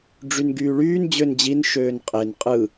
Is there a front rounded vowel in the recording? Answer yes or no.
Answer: yes